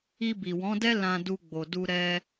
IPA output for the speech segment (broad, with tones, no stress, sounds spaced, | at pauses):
i˧ b i˨ w ɔ̃˨˦ d ɛ˦ l ã˧ d u˧ ɡ͡b o˨ d u˧ ɾ ɛ˦